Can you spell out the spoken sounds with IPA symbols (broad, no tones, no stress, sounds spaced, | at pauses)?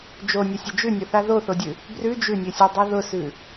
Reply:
d͡ʒ o nʲ ə sʲ ə d͡ʒ ʉ nʲ ʊ θ a ð o θ o dʲ ʉ | b r ʉ d͡ʒ ʉ nʲ ʉ sʲ ə˞ dˤ ɯ ð ʊ s ʉ